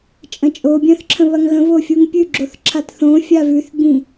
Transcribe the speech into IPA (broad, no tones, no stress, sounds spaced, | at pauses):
t͡ʃʼ ə̃ t͡ʃʼ o bʲ œ̃ θ ǁʰ ə̃ β ɐ ŋ ɣ ə̃ v o fʲ u ŋ pʲ ʉ ɡ͡ǁ o θ ǁʰ a t θ õ fʲ a v ʉ θ ɡ͡b ĩ